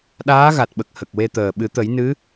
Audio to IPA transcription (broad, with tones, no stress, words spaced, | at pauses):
ɗaː˧˥ɣa˨˩t̚ɓə˨˩k̚ hə˨˩k̚we˧t̪əː˨˩ ɓɨ˨˩˦t̪ə˨˩˦j nɨ˧˥